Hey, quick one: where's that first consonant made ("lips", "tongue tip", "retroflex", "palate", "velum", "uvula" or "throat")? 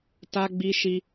tongue tip